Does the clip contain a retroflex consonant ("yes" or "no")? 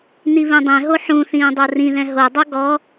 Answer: no